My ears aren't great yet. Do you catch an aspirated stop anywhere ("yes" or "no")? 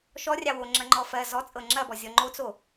no